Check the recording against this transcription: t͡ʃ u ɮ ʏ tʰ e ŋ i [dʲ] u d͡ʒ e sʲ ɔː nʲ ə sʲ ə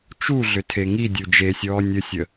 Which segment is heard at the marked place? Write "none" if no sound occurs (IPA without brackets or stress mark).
dʲ